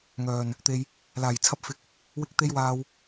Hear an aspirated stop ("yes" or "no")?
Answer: yes